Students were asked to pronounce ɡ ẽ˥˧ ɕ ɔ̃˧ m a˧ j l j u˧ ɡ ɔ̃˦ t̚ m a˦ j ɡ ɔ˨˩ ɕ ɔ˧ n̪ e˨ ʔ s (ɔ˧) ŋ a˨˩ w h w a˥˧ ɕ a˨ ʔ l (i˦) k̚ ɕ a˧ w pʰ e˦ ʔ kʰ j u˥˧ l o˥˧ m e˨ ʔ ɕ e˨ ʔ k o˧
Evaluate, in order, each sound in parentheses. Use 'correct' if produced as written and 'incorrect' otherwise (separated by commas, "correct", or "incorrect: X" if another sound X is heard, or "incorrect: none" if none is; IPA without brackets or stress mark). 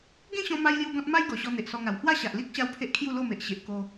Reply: correct, correct